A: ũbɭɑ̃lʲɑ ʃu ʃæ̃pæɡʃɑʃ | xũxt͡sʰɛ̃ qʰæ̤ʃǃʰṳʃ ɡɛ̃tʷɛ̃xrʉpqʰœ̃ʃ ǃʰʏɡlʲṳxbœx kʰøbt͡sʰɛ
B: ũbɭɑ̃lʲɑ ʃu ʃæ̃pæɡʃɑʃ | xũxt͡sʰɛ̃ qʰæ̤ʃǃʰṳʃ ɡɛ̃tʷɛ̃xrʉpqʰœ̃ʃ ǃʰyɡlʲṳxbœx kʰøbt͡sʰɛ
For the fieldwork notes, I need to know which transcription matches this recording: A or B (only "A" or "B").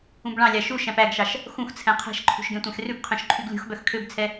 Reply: B